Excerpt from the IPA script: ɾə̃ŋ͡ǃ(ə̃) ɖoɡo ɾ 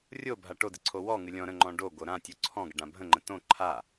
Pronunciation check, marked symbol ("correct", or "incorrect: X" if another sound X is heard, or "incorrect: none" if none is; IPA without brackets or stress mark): incorrect: ɔ̃